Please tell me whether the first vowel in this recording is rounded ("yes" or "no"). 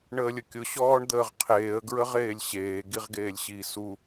no